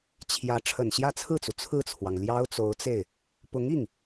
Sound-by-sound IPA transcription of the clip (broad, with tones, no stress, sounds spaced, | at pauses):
t͡ɕʰ j ä˧˥ ʈ͡ʂʰ ə˨˩ n ɕ j ä˥˧ t͡sʰ ɹ̩˥˩ t͡s u˩ t͡sʰ ɹ̩˥˩ t͡sʰ w ɑ˩ ŋ l j ɑ˥ ʊ̯ t͡s o˧˥ ʊ̯ t͡s e˥˩ ɪ̯ | p ʊ˧˥ ŋ i˥˩ ŋ